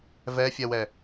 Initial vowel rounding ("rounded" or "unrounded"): unrounded